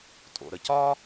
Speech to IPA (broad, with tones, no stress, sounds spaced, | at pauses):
tʼ o̰˩ ɾ ə˩ c ɒː˥